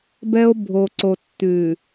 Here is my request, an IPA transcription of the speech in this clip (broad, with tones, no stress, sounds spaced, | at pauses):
b ɛ˦ o̯ bʱ o˨ ǀ o˨ tː ʉ˨